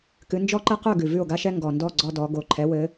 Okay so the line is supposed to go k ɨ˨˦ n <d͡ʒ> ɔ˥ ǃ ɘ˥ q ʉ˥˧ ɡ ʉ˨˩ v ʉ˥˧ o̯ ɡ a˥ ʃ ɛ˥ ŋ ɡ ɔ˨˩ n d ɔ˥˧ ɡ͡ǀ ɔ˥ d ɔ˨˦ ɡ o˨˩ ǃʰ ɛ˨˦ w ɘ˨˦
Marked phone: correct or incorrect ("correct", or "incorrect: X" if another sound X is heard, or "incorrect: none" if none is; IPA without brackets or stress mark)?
correct